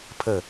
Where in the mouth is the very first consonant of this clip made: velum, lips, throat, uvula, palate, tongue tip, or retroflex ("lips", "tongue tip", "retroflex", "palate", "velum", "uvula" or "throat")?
lips